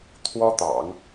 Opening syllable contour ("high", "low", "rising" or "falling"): high